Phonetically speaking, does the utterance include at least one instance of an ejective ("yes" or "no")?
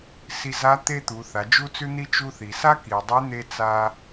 no